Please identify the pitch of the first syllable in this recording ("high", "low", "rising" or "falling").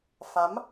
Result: rising